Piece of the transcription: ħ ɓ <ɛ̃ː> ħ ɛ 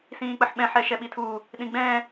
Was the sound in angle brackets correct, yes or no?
no